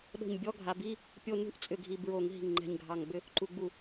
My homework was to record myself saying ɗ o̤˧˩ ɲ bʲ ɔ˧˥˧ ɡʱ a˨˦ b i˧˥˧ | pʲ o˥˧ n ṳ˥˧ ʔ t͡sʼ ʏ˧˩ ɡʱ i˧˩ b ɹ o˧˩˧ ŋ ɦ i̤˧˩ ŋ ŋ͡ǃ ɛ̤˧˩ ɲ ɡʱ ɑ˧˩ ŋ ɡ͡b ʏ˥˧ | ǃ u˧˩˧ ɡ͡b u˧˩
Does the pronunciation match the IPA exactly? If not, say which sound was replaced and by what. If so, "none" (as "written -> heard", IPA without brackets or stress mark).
none